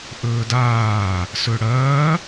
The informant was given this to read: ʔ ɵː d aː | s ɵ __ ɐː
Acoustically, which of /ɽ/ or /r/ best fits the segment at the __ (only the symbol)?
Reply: ɽ